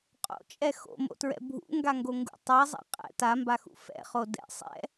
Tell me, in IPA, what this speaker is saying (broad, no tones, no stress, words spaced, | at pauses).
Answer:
qʼo̰t͡ʃʼɛ xo̰mo̰tɹɛ̰ bʱṵŋɡaŋɡoŋɡṵ tˤɛzˤa̰ qʼɛ̰ tambaxṵ fɛ̰χo dɛ̰ sˤɛ̰